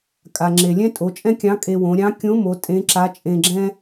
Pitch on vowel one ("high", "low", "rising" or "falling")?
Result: low